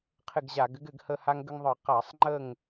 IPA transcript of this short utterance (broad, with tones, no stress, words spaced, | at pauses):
qʰɪ˦˨ɡʑa˧˩˧ɡɘ˥ɡɘ˧˩˧ɡ hə˦˨ ha˥ŋɡə˥ŋðˤɯ˧˩˧ qa˧˩˧sˤŋ͡ǃə˦˨ŋ